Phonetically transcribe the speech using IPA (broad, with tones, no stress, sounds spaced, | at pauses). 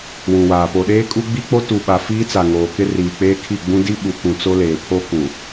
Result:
w ũ˨ w aː˨ p o˨ ɗ eː˦ kʼ u˦ ɡ͡b i˦ k͡p o˦ t u˨ ɓ a˨ f iː˦ t͡s a˨ ŋ oː˨ k ɪ˦ r iː˨ k͡p eː˦ kʰ i˦˨ ɡ͡b ũ˦ d i˦ ɓ u˨ k ũ˨ t͡s o˦ l eː˨ pʰ o˦ k ũ˨